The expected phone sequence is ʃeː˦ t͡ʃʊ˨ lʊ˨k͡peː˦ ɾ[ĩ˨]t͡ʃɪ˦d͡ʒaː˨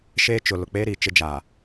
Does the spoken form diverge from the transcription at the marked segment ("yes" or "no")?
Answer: yes